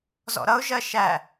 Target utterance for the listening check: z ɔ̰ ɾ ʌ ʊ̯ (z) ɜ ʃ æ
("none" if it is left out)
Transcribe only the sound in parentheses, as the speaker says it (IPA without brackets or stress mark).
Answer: ʒ